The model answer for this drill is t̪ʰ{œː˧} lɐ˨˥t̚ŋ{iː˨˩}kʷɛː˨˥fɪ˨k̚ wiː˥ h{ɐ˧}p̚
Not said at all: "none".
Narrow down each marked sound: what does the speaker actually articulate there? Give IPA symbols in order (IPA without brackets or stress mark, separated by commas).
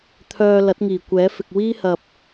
œː˧, iː˨˩, ɐ˨